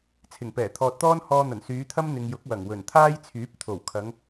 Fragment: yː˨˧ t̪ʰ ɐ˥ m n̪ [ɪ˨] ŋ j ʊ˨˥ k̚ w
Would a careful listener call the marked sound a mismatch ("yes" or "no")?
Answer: no